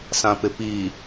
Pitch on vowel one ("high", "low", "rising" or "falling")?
low